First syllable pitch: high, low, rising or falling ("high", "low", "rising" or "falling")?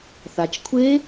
low